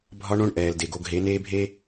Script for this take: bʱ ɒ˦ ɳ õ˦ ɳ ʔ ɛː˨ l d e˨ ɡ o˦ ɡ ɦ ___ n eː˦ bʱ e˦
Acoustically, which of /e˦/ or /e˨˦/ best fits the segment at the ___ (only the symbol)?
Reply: e˨˦